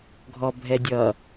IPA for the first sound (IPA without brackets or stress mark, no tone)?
ɡʱ